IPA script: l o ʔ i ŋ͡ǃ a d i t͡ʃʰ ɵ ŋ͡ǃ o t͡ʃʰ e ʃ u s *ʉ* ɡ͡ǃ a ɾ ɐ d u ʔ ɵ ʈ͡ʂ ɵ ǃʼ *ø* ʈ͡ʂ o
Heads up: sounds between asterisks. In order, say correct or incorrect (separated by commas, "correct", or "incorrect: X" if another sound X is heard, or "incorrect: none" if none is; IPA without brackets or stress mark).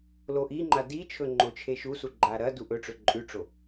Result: incorrect: u, incorrect: ʉ